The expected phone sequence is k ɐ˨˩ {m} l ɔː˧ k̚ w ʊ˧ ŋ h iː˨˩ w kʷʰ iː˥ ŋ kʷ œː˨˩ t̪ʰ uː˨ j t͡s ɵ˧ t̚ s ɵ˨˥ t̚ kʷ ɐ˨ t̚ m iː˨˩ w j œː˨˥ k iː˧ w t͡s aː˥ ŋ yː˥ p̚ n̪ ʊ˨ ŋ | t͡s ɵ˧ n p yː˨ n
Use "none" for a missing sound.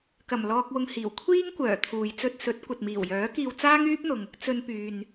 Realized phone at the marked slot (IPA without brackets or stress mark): m